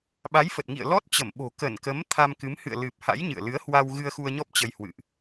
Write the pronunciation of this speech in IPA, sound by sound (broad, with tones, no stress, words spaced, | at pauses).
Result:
ɓa˨˦jfə˨˩t̚ ŋḭ˧˨ə̯lɔ˦˥t̚ t͡ɕə˧˩mɓo̤˨˩ kə˧˩nkə˨˦m t̪ʰa˧mkɨ˨˦m hɨ̰˧˨ə̯lɨ˨˩p̚ ha̰˧˥jɲɨ̰˧˨ə̯lɨ˨˦ə̯ hwa˧w ɣɨ˧ə̯xu˧ə̯ɲɔ˦˥p̚ t͡ɕə˧jhwɨ̰˧˨ʔ